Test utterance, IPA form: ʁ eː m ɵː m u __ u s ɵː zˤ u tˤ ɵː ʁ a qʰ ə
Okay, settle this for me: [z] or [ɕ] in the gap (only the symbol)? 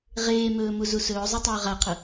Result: z